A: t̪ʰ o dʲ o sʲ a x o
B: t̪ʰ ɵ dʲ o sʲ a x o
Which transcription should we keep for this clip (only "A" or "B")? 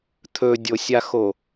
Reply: B